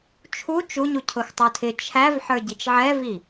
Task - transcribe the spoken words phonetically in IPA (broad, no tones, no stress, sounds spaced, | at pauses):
t͡ʃʰ u t͡ʃ u ɲ u cʰ ʊ x tˤ u tʰ ɪ t͡ʃʰ æ v ħ ə˞ ɟ i t͡ʃ ʕ ɛ v i